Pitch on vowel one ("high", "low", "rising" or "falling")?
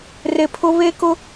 low